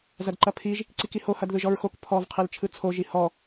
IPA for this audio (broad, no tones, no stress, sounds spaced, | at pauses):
z ɐ d ǃ ɐ pʰ i ʒ | ǀ i k i h o h ɐ d ð ɯ ʒ ɔ ɹ x o k pʰ ɔ v qʰ i l t͡ʃʰ ɯ t͡sʰ o ʒ i h ɔ